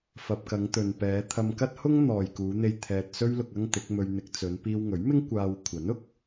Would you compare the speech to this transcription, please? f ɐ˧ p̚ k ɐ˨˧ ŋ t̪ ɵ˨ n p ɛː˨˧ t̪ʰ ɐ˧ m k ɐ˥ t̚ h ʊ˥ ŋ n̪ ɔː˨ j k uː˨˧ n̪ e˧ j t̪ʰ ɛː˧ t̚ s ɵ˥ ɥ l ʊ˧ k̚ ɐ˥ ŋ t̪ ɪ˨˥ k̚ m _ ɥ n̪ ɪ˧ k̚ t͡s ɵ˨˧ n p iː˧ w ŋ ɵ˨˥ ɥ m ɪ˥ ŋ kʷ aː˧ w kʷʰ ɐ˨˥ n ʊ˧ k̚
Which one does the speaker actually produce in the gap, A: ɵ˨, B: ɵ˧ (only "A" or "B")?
B